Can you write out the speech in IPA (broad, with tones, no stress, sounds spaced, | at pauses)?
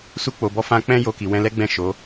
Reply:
s u˧ k͡p o˨ b ɔ˧ f ã˧ k͡p ɛ̃˧ j o˧ k i˨ w ɛ̃˧ l ɛ˦ ɡ͡b ɛ̃˦˨ ʃ o˨˦